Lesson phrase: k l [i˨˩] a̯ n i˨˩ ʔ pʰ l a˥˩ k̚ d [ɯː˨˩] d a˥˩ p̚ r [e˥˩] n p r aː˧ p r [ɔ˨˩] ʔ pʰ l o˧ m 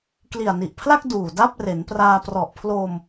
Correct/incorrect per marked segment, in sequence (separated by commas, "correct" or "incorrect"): correct, incorrect, incorrect, correct